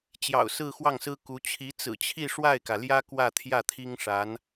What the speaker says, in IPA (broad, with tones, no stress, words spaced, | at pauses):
t͡ɕjɑ̰˨˩ʊ̯sɹ̩˥˧xwɑ˥˩ŋsɹ̩˥ ku˧˥ t͡ɕʰi˧˥t͡sɹ̩˨˩t͡ɕʰi˥˧ ʂwa˥˩ɪ̯kä˩ljä˥ kwä˥˧t̪ʰjä˥˩t̪ʰi˥ŋ ʂa˧˥n